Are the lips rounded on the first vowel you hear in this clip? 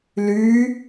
yes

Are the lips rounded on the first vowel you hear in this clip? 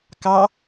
no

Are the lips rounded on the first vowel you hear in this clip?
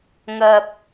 no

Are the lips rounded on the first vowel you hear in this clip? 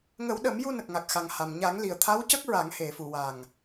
no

